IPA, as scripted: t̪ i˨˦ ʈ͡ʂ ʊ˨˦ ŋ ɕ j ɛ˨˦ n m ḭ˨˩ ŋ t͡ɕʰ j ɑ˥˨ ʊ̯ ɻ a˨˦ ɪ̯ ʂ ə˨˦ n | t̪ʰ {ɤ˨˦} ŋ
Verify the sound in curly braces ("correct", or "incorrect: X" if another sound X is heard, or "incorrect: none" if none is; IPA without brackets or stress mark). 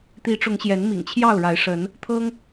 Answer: incorrect: ɤ˦